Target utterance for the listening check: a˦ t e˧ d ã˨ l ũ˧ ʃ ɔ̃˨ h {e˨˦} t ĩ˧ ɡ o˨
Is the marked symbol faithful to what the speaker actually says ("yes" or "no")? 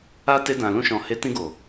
yes